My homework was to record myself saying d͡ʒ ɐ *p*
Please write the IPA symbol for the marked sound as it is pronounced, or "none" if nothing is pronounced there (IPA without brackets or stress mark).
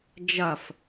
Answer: f